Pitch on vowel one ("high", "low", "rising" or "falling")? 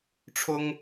high